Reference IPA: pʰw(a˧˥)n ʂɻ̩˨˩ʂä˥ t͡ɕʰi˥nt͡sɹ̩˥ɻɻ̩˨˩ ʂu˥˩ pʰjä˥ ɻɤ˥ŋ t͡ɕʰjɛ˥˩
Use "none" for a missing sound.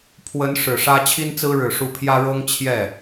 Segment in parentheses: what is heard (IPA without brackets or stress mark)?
ə˧˥